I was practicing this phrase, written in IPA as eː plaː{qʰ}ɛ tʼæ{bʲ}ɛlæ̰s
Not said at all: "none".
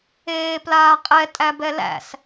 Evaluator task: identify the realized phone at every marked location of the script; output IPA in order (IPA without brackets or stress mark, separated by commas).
qʼ, b